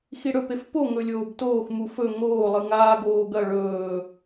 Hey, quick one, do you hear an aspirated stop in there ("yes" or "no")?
no